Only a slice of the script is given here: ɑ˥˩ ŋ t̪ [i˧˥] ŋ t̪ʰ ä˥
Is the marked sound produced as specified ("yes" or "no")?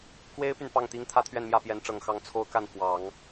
no